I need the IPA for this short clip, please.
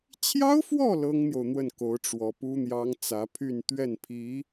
t͡ɕʰ j ɑ˥ ʊ̯ f w ɔ˥˩ l ɤ˥ ŋ n̪ j o˨ ʊ̯ n̪ w ə˥˩ n k o˧˥ ʊ̯ ʈ͡ʂ w ɔ˧˥ p u˥ n̪ j ɑ˥ ŋ t͡s ä˧˥ pʰ y˥˧ n t̪ ɥ ɛ˥˩ n pʰ i˧˥

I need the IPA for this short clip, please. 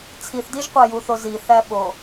t͡sʰ i θ d i ʒ qʷ æ j u θ o z i θ æ ɓ o

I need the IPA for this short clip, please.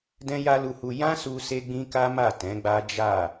d ɛ̃˦ j a˦ l u˧ h u˧ j ã˦ s u˧ s e˦ ɡ͡b ĩ˦ k a˦ m a˦˨ t ɛ̃˨˦ ɡ͡b a˦ d͡ʒ a˦˨

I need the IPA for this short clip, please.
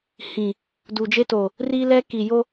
h ĩ˨ | d u˨ d͡ʒ e˦ t o˨ | r i˦ l ɛ˦ k i˨ j o˦

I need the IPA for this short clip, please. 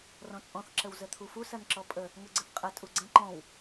r ɔ̃ t͡sʼ ɔ̃ θ ǁ ə w z ə t̪ʰ u f u s ɐ n ǁ ɔ pʼ ə | ŋ ɵ ɡ͡ǀ ə θ qʼ ə tʼ u ɡ͡ǀ ə̃ ǃ ɔ̃ w

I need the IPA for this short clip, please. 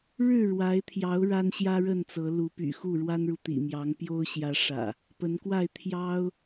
ɻ ɻ̩˥˨ ɻ w a˨˦ ɪ̯ t̪ʰ j ɑ˨˦ ʊ̯ ɻ a˦ n ɕ j ä˦ ɻ ə˥˨ n t͡s ɤ˨˦ l u˨˦ p y̰˨˩ x u˥˨ ɻ w a˦ n ɻ u˨ t̪ ḭ˨˩ m j ɑ˨˦ ŋ p j o˦ ʊ̯ ɕ j ä˨˦ ʂ ä̰˨˩ | p ə˨˦ n k w a˥˨ ɪ̯ t̪ʰ j ɑ˦ ʊ̯

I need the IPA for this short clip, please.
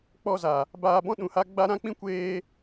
k͡p ɔ˦˨ z a˨ | b aː˧ b ɔ̃˦ ɗ ũ˨ h a˦ ɡ͡b a˦ ɾ ã˦ k͡p ĩ˦ kʷ eː˧

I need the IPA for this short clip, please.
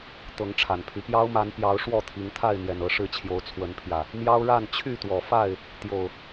t̪ ɤ˨˦ ŋ ʈ͡ʂʰ a˨˩ n pʰ y˦ p j ɑ˦ ʊ̯ m a˨˦ n p j ɑ˨˦ ʊ̯ ʂ w ɔ˥˨ t̪ʰ i˨˦ ŋ t̪ʰ a˥˨ ɪ̯ n̪ j ɛ˨˩ n ɤ˥˨ ʂ ɻ̩˥˨ t͡ɕʰ j o˨˦ ʊ̯ t͡sʰ w ə˨˦ n pʰ j ä˨˩ | m j ɑ˦ ʊ̯ ɻ a˥˨ n t͡ɕʰ y˥˨ t̪ w ɔ˨˩ f a˥˨ ɪ̯ | t̪ j o˨˩ ʊ̯

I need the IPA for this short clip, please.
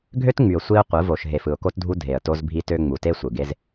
ɡʱ ø˦ t ŋ͡m y˨ ʊ̯ sʷ i˦ ʊ̯ qʷ ɯ˨˦ v o˨ ʃ ɦ e˨ f ɯ˨ ʊ̯ k o˦ t dʱ u˦ dʱ e˨ ə̯ t o˦ z bʱ i˦ t ø˦ ŋ͡m u˨ t e˦ sʷ ɯ˨ ɡ e˦ z

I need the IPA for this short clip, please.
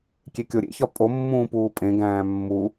kʲ e kʲ o ɾʲ ḛ ç ɒ pʼ o mː ũː p uː pʼ ẽ ɡ æ̃ː mː u

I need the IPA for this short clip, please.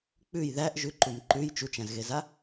k͡p ʉ j ð æ ʔ ʒ ʉ ǃ u m ǃ ʉ j t͡ʃ u t͡ʃ æ̃ z ɣ e z a

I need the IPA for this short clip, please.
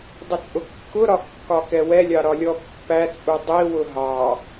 dˤ ə t͡sʼ ʊ kː ʊ ɾ ɒ kː ɒ k ɛ w ɛ lʲ ɑ ɾ ɒ lʲ ɔ pː æ t͡sʼ u dˤ i w ʊ ɦ ɑ

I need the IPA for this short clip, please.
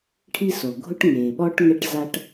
ʈʰ i˦ s o˨ ɡʱ ʊ˦ ʈ ŋ eː˨ ɓ ɔ˦ ʈ ŋ ɛ˦ ʈ z a˦ ʈ

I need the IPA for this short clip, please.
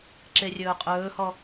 ǁ e rʲ ɵː qʼ ɵː h ɔ

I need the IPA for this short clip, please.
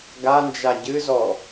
ɡ a n d͡ʒ a ɟ ɨ z ɔ

